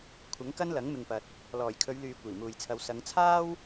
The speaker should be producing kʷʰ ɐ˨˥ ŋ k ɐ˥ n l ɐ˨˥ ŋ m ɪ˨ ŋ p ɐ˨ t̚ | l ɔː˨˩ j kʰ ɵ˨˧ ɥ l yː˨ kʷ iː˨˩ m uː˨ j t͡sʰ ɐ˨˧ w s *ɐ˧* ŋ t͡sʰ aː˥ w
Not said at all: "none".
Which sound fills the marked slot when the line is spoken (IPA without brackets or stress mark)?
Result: ɐ˨˧